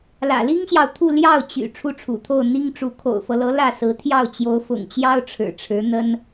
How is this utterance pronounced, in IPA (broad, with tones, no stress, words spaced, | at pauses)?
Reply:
lä̰˨˩li˥ŋɕjɑ˨ʊ̯ t̪ʰu˥˧ ljɑ˥˩ʊ̯ t͡ɕy̰˨˩ ʈ͡ʂʰu˥˩ʈ͡ʂʰṵ˨˩t̪ʰo˥˩ʊ̯ n̪i˥ŋʈ͡ʂu˧˥ kʰo̰˨˩ʊ̯fɤ˦lɤ˧˥ lä˥˩sɹ̩˧˥t̪ʰjɑ˥˩ʊ̯ t͡ɕjo˧˥ʊ̯fʊ̰˨˩ŋt͡ɕjɑ˥ʊ̯ ʈ͡ʂʰɻ̩˨˩ʈ͡ʂʰɻ̩˧˥ n̪ə˥n